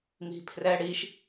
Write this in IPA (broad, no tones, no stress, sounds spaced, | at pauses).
m i̤ pʰ r ɛ ɽ i ʃ